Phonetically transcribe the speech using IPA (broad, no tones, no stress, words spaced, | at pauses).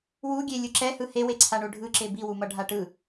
wuɡʲe lʲɯǁɛhɯ hewe ǀʰaɳoɖʱɯ ǁebiwu mʌɖʱaʈɯ